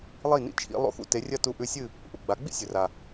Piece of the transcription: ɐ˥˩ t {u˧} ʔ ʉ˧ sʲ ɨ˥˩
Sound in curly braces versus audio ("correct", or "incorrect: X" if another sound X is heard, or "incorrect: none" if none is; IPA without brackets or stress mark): correct